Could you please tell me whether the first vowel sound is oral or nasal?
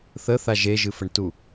oral